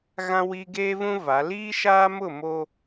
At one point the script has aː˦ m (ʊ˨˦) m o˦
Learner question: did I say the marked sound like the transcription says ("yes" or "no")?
no